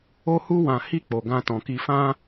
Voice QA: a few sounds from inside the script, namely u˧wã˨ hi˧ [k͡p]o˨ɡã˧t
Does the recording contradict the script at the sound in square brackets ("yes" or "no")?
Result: no